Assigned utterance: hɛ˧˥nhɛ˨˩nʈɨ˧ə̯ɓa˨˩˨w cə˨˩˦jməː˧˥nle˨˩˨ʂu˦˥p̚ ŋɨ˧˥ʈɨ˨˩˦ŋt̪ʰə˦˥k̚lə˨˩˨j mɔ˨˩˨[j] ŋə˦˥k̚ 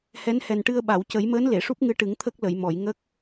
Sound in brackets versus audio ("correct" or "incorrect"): correct